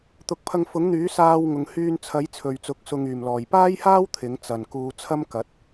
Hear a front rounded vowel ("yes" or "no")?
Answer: yes